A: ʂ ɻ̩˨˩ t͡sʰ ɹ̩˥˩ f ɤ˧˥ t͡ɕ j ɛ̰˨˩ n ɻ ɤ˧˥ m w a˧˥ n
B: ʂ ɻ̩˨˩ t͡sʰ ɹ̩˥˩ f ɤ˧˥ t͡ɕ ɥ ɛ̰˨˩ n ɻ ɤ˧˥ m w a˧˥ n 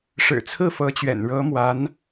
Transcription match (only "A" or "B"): B